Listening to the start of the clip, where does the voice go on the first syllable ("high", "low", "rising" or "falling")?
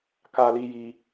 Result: high